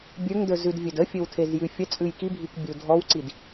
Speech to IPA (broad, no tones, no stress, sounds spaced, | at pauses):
bʲ ə˞ ŋ d ə˞ z ʉ d vʲ ɵ d ə fʲ ɵ w tʰ e z j ʉ fʲ ə t͡sʼ ʉ j k i bʱ i k bʲ ə w dʱ ɔ w ǀ i d